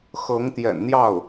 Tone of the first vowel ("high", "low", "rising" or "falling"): rising